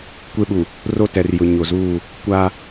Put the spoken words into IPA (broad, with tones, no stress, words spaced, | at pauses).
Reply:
kʷe˦ɓu˨ | ro˦ tɛ˨r jʊ˨ ɲo˨zuː˦˨ | kʷa˦